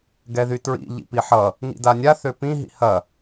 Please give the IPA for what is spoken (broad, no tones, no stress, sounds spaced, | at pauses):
ɡ ɛ ð y t ɹ ḭ ʎ ḭ p i ħ ʌ | ŋ ḭ d a nʲ a θ ø p ĩ ɦ ḭ h ɐ